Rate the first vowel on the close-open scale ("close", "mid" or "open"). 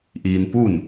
close